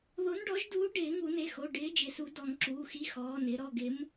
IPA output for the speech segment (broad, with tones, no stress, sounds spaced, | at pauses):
ð o˨˥ n ɖ ɔ˨˥ ʒ d uː˨˥ ɖ ɪː˨˩˦ ŋ u˨˩˦ n e˩˧˩ x o˩˧˩ ɖ ɪː˨˥ d͡ʒ ɪ˩˧˩ s u˨˩˦ d ɔ˨˩˦ ŋ ǁ uː˩˧˩ x i˨˥ x ɔː˩˧˩ n ɪ˨˩˦ ɾ ɔ˩˧˩ ɡ ɪ˨˥ m